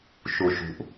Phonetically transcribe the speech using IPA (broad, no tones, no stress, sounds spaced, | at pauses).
ʃ u ʃ ṳ ʔ